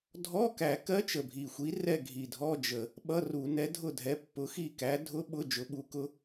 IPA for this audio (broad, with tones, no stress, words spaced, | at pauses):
dʱɔ˧˥˧kæ˨˩kɜ˦˥ t͡ʃə˨˩bʱi˨˩xʷi˨˦rɛ˦˨ ɡʱi˨˩dʱɔ˧˥˧ d͡ʒə˧˩˧ | ɓʌ˧˥˧ru˧˩˧ nɛ˨˦dʱʊ˦˨dʱɛ˨˦pːʊ˨˦ xi˦˨kæ˨˦ dʱʊ˦˥ɓʊ˧˥˧ d͡ʒʊ˨˦ɓu˨˦kʊ˦˥